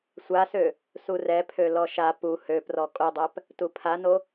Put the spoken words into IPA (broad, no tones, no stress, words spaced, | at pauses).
sʷasø | surɛpʰø lɔʃa pu høprɔ kʼodˤæp | tupʰano